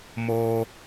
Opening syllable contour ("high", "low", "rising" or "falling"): low